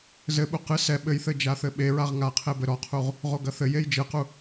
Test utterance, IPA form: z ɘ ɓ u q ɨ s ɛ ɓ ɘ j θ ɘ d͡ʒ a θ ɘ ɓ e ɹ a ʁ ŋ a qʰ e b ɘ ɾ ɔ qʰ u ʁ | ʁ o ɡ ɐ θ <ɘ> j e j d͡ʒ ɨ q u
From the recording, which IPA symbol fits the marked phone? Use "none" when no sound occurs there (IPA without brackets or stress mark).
ɘ